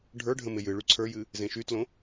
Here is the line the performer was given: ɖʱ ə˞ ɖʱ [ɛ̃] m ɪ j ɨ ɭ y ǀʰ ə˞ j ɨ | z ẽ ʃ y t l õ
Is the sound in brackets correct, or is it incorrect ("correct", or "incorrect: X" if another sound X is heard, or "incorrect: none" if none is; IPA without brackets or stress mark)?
incorrect: ə̃